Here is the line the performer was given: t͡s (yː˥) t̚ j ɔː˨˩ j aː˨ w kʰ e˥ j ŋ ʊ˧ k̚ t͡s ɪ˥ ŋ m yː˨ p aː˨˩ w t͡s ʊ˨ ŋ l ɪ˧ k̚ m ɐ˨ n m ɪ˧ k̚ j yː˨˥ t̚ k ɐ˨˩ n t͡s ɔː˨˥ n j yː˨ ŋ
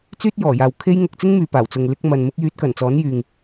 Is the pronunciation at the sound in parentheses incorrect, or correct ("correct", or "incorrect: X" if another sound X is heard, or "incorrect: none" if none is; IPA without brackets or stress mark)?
correct